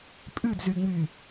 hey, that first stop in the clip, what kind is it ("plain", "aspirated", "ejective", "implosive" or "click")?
ejective